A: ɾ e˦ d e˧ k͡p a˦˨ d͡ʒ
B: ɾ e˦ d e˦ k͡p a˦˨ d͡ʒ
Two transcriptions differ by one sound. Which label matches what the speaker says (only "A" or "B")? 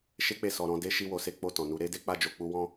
B